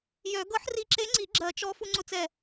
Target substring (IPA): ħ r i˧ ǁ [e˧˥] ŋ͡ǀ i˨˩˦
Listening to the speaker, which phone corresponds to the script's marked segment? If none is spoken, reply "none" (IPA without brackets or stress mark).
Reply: e˧˥